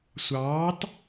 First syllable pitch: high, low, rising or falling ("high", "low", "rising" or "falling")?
rising